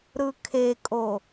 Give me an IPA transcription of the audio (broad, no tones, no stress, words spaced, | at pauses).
ɾɯkʰekʼo